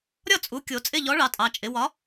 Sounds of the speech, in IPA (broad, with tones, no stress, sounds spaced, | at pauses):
ɾʲ ɒ˦˨ t͡sʼ u˩˧ kʲ o˩˧ t͡sʼ ɪ˦˨ ʎ ɔ˨˥ ɭ ɑ˩˧ tʼ ɑ˩˧ t͡ʃʼ ɪ˩˧ w ɒ˨˥